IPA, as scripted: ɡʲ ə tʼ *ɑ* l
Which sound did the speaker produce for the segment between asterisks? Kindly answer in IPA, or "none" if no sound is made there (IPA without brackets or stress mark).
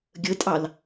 ɑ